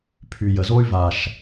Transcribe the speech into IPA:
pʰy˨jə˨zo˦y̯ va˨ʃ

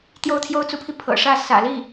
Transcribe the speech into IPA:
t̪jo˥˩ʊ̯t̪ʰjo˥ʊ̯t͡su˧˥pʰi˧ pʰɤ̰˨˩ʂä˥˩ sä̰˨˩li˥˩

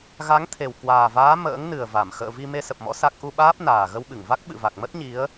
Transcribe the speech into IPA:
ɣa˨˦ŋt̪ʰe˨˩wkwaː˨˩vaː˨˦ mə̰ː˧˥ŋnɨ˨˩ə̯va˧˩m xə̰ː˧˨vi˧ me˧sə˨˩p̚mɔ̰˧˥ sa˦˥k̚ ʔu˧ɓaː˦˥p̚naː˨˩ ɣə˧wɓɨ˧˩ŋva˦˥k̚ ɓɨ̰˧˨va˨˩k̚mə˦˥t̚ ɲi˨˦ə̯

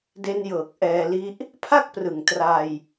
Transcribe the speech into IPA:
de˦˥njɤː˨˩k̚ʔɛː˧li˦˥ʔ | pʰa˥˩k̚prɯ˨˩ŋ tra˧j

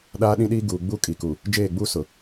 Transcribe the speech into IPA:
ɗaː˦ɗĩ˦ɗiː˦ ɡuː˨ ɡ͡bu˦kʼi˨ku˨ | d͡ʒeː˦˨ɡ͡buː˦ sʊ˨

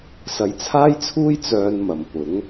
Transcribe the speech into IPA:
sɐ˨jt͡sʰaː˥jt͡sʰuː˥j t͡sœː˧nmɐ˨˩m pʊ˨˥ŋ

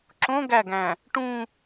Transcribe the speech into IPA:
ǁõ ɡæɡæ̃ | ʈũ

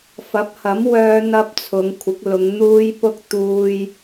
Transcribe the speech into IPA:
fɐ˨˥p̚hɐ˨˥m wœː˥n̪ɐ˥p̚t͡sʰʊ˨˧ŋ kʷʰɪ˨˥k̚lʊ˨˧ŋ n̪uː˥jpʊ˥k̚ t̪uː˧j

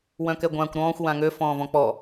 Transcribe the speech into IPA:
wœ̃kɛɡʷãːkʷɾɔ̃ːxʷ wãŋø fɔ̃ːvɔ̃k͡pɔ

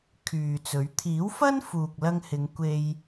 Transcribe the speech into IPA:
kʰyː˨t͡sɵ˨˥ɥ t̪ʰiː˨˥wfɐ˥n fuː˨k̚lɐ˧ŋhɪ˨˧ŋ kʷe˧j

